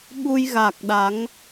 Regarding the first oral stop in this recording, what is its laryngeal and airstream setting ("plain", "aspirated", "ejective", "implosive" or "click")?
implosive